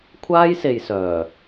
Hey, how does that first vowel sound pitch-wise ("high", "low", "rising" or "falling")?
high